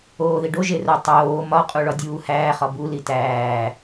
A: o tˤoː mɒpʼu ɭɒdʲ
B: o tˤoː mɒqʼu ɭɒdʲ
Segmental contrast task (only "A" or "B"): B